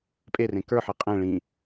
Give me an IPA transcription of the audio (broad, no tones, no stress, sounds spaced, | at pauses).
pʼ e r ẽ k ə˞ ħ e qʼ ẽ ɭ ĩ